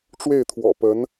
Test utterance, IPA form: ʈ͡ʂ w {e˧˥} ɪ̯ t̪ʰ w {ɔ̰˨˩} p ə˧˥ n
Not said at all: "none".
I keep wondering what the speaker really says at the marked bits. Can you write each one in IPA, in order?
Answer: e˥˩, ɔ̰˨˩

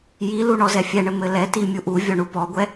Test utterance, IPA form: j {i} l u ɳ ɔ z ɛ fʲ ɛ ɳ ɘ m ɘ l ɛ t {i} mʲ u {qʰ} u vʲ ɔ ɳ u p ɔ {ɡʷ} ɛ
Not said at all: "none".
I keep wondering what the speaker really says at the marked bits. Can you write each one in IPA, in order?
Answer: i, i, ʔ, ɡʷ

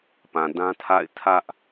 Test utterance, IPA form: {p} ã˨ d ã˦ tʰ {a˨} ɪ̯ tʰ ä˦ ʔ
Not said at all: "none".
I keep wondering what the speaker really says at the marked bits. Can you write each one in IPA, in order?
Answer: p, a̰˦˨

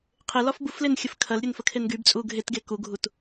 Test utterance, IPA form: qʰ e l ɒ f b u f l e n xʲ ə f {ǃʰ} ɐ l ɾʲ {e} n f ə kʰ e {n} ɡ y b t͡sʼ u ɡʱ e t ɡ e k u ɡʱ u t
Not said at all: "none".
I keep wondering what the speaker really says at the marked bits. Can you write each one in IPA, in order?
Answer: kʰ, e, n

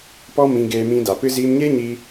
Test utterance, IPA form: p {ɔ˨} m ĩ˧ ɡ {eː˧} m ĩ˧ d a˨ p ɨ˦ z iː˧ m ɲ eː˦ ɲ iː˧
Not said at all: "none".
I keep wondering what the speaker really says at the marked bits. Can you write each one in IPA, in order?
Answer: ɔ˦, eː˧

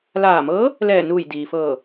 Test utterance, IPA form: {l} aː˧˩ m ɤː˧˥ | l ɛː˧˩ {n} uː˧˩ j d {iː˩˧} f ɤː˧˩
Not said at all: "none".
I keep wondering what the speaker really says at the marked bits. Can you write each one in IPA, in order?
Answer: l, n, iː˩

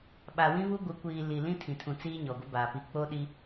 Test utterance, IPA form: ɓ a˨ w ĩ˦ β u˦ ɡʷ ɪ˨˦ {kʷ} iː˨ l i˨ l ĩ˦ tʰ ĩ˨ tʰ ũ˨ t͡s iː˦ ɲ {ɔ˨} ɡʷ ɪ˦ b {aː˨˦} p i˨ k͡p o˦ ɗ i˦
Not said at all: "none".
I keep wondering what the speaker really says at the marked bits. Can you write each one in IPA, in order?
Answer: kʷ, ɔ˨, aː˨

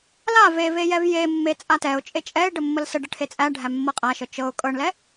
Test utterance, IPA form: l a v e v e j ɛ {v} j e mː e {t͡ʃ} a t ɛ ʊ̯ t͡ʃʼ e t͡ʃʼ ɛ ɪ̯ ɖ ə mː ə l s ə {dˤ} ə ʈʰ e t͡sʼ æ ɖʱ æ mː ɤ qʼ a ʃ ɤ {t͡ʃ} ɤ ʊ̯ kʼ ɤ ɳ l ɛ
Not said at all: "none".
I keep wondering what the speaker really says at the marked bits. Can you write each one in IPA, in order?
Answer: v, t͡sʼ, ɖ, t͡ʃ

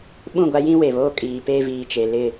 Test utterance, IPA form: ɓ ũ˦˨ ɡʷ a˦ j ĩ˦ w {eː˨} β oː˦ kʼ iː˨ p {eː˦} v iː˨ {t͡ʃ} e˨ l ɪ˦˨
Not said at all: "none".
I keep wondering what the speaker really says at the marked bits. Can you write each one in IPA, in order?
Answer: e˨, eː˦, t͡ʃ

